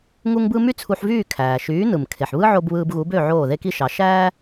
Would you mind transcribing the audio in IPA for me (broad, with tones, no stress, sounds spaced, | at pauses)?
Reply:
ŋ u˥ ŋ b ɯ˥ m y˥ t͡sʰ u˧ ħ v yː˥˩ kʰ æː˩ ʃ yː˩˥ n ɯ˩ m kʰ e˩ ħ β ɯ˥ ʕ o˧ b β ɯː˧ b ɣ u˩˥ b ø˥˩ ʕ oː˥˩ ð e˥ k i˥ ʃ ɑ˩˥ ʃ æː˥